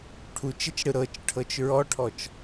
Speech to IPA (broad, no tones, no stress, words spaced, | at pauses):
ʈʰut͡ʃet͡ʃɽɯ ɾɤt͡ʃʈʰɤt͡ʃ ɹɔʈʰɔt͡ʃ